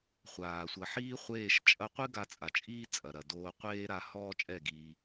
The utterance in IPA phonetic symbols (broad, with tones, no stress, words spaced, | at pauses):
χʷaː˨ sʷɐ˨ħiː˦χʷeː˦˨ʃt͡ʃʼɐ˦ qʷɨ˦ ɡa˧t͡sʼa˨t͡ʃʼiː˦ t͡sʼɐ˨ɾɐ˨ doː˧ qʷeː˦ɾa˧hɔː˦t͡ʃʼɛ˦˨ ɡiː˧